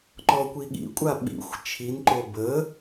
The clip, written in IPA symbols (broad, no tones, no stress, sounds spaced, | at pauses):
ǃ ɔ kʷ i ɠ ḭ kʷʼ a ɓ ḭ xʷ t͡ʃʰ i n ǃ o b ə